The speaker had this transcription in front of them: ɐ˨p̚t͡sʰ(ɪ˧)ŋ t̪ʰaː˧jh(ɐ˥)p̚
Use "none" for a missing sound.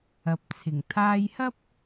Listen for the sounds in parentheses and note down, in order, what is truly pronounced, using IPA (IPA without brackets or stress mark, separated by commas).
ɪ˨˩, ɐ˥